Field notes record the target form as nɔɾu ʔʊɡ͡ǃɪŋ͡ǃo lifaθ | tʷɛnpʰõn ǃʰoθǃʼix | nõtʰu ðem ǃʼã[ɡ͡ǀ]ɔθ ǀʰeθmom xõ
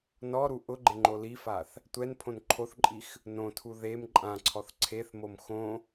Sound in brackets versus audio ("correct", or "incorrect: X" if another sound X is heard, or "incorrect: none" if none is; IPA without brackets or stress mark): incorrect: ǀʰ